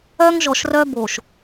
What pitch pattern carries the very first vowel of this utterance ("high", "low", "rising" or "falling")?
high